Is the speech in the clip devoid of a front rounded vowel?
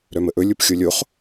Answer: no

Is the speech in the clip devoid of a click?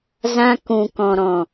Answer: yes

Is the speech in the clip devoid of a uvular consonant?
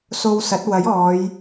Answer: yes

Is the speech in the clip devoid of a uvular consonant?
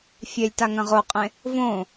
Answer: no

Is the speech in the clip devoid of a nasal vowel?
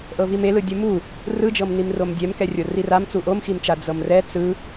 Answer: yes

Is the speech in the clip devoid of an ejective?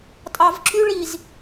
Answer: no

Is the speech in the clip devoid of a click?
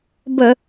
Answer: yes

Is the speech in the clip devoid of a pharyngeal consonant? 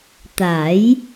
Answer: yes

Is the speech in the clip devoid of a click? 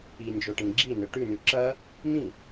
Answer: no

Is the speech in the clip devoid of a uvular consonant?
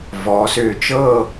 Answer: yes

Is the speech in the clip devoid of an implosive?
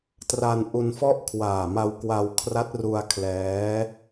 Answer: yes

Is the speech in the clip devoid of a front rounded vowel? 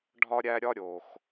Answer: yes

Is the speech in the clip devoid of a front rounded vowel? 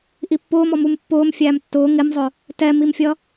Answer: yes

